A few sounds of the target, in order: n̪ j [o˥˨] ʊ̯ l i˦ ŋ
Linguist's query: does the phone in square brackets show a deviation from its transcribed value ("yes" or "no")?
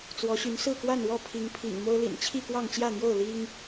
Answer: no